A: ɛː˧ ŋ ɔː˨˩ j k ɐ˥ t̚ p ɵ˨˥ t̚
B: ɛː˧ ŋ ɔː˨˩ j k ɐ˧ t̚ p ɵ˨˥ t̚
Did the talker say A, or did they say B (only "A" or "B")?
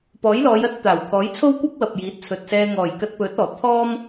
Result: B